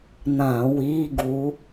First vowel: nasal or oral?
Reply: nasal